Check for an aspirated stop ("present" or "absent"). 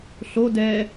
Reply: absent